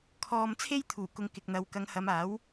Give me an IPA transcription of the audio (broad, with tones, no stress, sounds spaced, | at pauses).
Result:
kʰ ɔː˧ m t͡sʰ e˥ j t̪ʰ uː˨˩ k ʊ˨ ŋ k ɪ˨ k̚ n̪ ɐ˨˧ w k ɐ˨˧ ŋ h ɐ˨˧ m aː˨˥ w